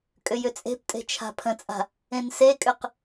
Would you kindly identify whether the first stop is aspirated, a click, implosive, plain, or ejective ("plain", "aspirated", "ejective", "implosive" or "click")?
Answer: ejective